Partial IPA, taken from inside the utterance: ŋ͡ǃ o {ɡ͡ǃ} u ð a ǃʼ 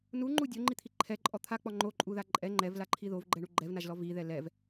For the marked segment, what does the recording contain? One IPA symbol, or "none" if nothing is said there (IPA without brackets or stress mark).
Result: ǃʼ